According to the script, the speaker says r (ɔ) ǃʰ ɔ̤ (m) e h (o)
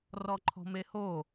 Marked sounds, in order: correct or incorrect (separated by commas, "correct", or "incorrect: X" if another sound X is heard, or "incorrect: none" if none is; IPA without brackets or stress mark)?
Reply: correct, correct, correct